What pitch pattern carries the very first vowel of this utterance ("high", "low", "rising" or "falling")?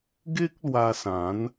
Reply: high